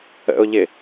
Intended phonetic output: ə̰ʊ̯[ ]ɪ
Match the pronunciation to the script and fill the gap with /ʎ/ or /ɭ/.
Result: ʎ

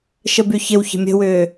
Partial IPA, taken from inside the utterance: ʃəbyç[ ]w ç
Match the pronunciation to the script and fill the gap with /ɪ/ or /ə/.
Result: ɪ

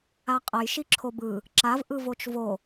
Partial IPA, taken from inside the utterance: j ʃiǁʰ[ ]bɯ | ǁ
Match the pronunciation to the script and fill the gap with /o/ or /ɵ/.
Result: o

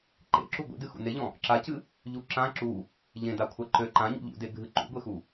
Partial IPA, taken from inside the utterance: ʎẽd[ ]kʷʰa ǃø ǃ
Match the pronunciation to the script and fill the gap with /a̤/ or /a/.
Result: a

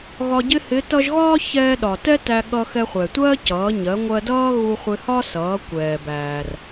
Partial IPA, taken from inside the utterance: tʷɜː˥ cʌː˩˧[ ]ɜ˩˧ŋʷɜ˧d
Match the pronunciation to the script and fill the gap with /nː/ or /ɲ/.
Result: ɲ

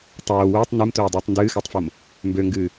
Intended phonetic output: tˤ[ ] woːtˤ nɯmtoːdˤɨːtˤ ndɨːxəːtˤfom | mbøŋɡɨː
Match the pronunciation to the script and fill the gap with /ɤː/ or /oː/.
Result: oː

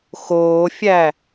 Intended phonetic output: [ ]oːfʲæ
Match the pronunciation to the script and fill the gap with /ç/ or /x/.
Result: x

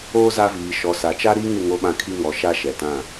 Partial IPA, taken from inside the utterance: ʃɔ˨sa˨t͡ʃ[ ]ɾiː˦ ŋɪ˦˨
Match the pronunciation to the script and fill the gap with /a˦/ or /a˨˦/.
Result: a˦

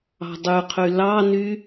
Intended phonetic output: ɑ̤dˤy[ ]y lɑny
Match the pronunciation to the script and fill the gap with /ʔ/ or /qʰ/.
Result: qʰ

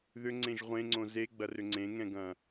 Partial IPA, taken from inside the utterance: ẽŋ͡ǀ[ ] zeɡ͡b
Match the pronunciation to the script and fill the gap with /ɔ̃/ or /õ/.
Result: õ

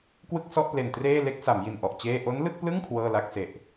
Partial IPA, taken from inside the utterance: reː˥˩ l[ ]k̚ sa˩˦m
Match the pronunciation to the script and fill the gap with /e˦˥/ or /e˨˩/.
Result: e˦˥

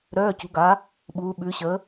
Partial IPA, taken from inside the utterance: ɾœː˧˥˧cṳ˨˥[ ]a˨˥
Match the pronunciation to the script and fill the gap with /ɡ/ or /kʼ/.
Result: ɡ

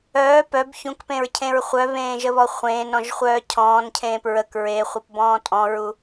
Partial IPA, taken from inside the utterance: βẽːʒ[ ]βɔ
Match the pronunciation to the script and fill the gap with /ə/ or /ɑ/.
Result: ə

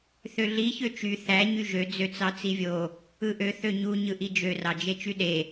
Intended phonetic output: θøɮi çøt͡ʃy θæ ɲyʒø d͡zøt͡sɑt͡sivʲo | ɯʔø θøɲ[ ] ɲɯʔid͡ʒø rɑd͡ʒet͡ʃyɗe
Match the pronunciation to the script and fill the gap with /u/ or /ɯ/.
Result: u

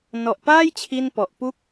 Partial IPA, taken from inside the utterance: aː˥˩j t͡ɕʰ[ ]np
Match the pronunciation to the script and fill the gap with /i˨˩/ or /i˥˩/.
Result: i˥˩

